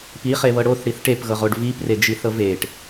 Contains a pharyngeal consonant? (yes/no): no